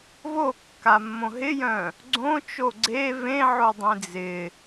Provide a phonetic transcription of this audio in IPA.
v o kː a mː õ ɦ ɪ j œ̃ | ɡ͡ǀ õ t͡ʃ o ɡ͡ǀ e v ẽ ʕ o dˤ ĩ d͡z ɪ

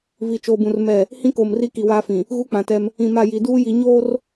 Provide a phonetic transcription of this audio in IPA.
v i˨ t͡ʃ oː˨ b ũ˨ r m ɛ˦˨ | h ĩ˦ k oː˨ m r i˦ k i˨ w aː˦ f ĩ˨ | ɣ u˦ k͡p ã˨ t ɛ˦ m | ĩ˨ m a˦˨ j i˨ d uː˦ j i˨ ɲ oː˦ r

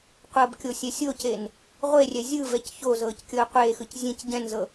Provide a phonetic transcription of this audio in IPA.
qʷ ɤ b kʲ o sʲ ɛ sʲ o c e n | ʁʷ e rʲ ɛ zʲ ɯ v ɛ c ç o z ɤː c kʲ ɤː qʷ eː x ɯ c zʲ ẽ c ɟ ɛ̃ n z ɤ

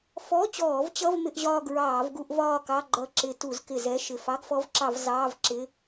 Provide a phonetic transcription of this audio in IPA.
f ɔ˧˥˧ t͡ɕ ɔː˧˩˧ v t͡ɕ ʌ˧˥˧ v m ɪ˥˧ ʔ ʑ ɒː˥˧ ɡ ɹ ɑː˧˩˧ v ɡ u˥˧ ʔ v ɒː˥˧ k ɑ˧˥˧ ɡ͡ǃ ʌ˧˩ ǁ ɪ˧˩˧ t u˧˩˧ z k ɪ˧˩˧ z ɛ˧˥˧ ʃ ɪ˧˩ f ɑ˧˥˧ ɡ f ɔ˧˥ v ǁ ɑ˧˩˧ v z ɑː˧˥˧ v ǁ ɪ˧˥˧

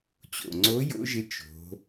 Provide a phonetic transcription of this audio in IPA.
t͡ɕ o̰˩ ŋ͡ǀ o˧˥ j o̰˧˥ ʒ ɪ˧˥ t͡ʃ o̤˩˧

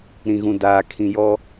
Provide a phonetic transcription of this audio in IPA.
ɾ ĩ˨ ɣ ũ˨ d aː˨ kʰ ĩ˨ j ɔ˦

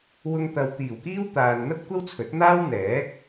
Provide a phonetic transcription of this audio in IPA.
w ʊ˧ ŋ t̪ ɐ˨ w t̪ iː˨˩ w k iː˥ w t̪ aː˨ n n̪ ɐ˥ t̚ kʷ ɐ˥ w t͡sʰ ɵ˨˥ t̚ n̪ aː˥ w n̪ ɛː˨˥ k̚

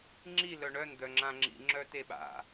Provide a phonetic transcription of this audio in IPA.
ŋ͡ǁ i l œ ɳ œ n d̪ œ ŋ͡ǁ ã ŋ͡ǁ ḭ ŋ͡ǁ œ t e ɓ a̰

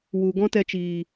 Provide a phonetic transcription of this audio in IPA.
w u˨ ɡ ɔ̃˦ t ɛ˧ t͡ʃ iː˨

